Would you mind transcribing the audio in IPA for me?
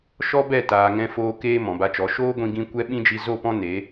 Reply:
ʃ ɔ˦ b ɛ˦˨ t aː˨ ŋ ɛ̃˧ f oː˧ k eː˧ m ɔ̃˨ b a˧ t͡ʃ ɔ˨˦ ʃ oː˦ ɡʷ ĩ˧ ɡ ĩ˧ kʷ ɛ˦ ɓ ĩ˦ d͡ʒ i˧ z o˦˨ p ɔ̃˦ n e˨˦

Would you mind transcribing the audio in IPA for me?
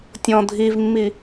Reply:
tʲ ɔ̃ dʱ i v mː i

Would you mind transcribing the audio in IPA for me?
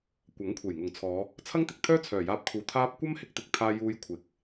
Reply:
kʷ ɐ˨˥ ŋ kʷʰ e˨˩ j ŋ ʊ˨˩ ŋ t͡sʰ ɔː˨˧ | t͡sʰ ɐ˥ ŋ t̪ ɪ˨ k̚ t̪ʰ œː˥ t͡sʰ œː˨˩ j aː˧ p̚ kʰ uː˨ t̪ʰ aː˥ p̚ kʷ ɐ˥ m h ɪ˧ k̚ t̪ ɪ˨ k̚ t̪ʰ aː˧ j uː˧ j kʷʰ ɪ˨˥ k̚

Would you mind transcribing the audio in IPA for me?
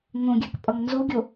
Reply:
ŋ õ ɡʲ a k pʼ ʌ ŋ n z o ɡʲ o

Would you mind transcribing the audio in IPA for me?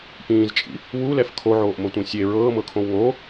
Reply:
p ĩː z t͡ʃʼ ḭ | w u l ɛ f kʰ o ʕ oː ʔ m o tʷ ĩ sʲ e ɹ ɤː m ɤ kʰ õ w ŋ o

